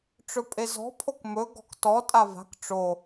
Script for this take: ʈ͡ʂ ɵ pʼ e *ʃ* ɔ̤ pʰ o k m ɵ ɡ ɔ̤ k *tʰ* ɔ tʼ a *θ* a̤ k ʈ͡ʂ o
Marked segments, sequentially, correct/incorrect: incorrect, incorrect, incorrect

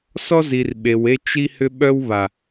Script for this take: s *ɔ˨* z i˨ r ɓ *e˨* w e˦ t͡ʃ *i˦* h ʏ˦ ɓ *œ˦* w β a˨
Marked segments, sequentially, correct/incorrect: incorrect, correct, correct, correct

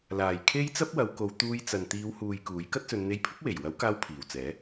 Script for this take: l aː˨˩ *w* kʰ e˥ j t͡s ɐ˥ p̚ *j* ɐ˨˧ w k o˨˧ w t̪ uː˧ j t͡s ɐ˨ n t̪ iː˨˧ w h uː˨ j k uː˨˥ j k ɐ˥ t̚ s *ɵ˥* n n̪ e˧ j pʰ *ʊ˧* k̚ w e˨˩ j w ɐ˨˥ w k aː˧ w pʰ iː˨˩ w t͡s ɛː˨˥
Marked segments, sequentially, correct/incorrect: incorrect, incorrect, incorrect, incorrect

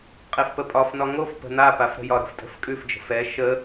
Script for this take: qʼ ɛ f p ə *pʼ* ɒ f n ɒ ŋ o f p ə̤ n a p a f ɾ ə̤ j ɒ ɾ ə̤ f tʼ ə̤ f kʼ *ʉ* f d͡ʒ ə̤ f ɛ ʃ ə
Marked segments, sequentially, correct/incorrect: correct, correct

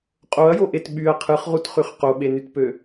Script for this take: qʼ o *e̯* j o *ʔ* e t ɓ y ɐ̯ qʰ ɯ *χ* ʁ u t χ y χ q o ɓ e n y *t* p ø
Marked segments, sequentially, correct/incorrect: incorrect, correct, correct, correct

